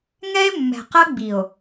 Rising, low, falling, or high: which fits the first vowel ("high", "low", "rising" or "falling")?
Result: high